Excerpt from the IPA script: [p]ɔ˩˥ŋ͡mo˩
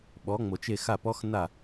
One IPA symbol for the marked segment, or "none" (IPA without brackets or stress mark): ɓ